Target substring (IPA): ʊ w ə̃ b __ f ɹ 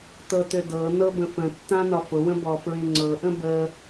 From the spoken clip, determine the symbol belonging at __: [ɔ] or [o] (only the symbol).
ɔ